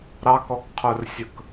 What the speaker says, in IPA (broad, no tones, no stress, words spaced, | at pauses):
ɾɑkɔkqʰœrsʲɵk